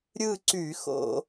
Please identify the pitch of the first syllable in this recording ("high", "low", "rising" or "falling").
falling